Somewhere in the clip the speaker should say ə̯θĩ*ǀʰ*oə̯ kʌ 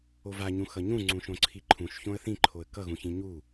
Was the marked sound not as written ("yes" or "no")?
yes